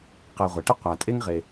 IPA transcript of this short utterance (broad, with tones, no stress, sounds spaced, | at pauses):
q ɛ˨ ʁʷ ɛ˩ ʈ ɪ˥ qʷ a˩ tʼ e˥ ŋ ʁ e˩